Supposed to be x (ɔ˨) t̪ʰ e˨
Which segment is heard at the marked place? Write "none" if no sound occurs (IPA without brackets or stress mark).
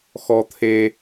ɔ˨